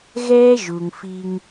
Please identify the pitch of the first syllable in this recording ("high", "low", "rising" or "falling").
high